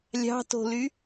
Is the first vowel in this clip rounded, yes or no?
no